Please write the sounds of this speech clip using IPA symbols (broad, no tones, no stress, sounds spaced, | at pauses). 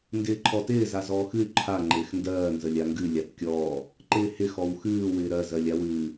n d ɪː ǃʰ ɔ t ɪː z a z ɔː x ɨ y̯ ǃʰ a ŋ͡ǃ ɪː x n d ɜː n z ə lʲ a ŋ ɡ ɨ lʲ a t kʲ ɔː | ǃ ɪː h ɪ x ɔ w x ɨː w ɪː ɾ ɜ z ɜ lʲ a w ɨː